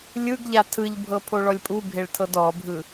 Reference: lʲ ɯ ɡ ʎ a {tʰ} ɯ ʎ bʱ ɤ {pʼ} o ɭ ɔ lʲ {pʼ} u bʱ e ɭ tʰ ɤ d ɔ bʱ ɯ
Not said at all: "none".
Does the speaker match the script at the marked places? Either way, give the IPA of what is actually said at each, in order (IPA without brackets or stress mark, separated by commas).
tʰ, pʰ, pʼ